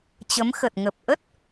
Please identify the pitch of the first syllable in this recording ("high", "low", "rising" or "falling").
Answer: rising